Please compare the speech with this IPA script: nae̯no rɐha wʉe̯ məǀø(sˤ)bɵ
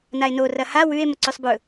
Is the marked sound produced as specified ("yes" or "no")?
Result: yes